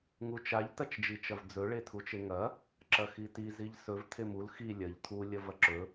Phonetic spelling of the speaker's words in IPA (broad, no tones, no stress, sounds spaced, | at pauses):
ŋ u t͡ʃ a ʎ t ɐ t͡ʃ d͡ʒ i t͡ʃ ɐ v d͡z ɵ ɭ e tʰ u t͡ʃ e ŋ ɐ | ǁ ɐ x i t i z i ʎ s ɵ v tʰ e m u l x i lʲ ɐ ʎ tʰ u lʲ ɐ v ɐ ǁ ɵ